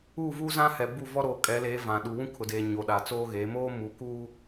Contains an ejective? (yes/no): yes